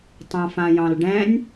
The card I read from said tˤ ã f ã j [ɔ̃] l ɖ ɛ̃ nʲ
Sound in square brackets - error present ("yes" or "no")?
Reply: yes